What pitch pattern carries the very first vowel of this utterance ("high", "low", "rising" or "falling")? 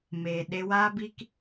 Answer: low